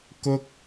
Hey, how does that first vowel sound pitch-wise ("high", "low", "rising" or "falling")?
high